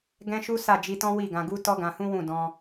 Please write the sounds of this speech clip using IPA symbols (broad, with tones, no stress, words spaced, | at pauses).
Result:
ɡɛ̃˦ʃu˦ sa˦˨d͡ʒi˧tɔ̃˦ wi˦˨ɡã˧ɡu˦ tɔ˦ɡã˧hũ˦wũ˦˨ dɔ̃˧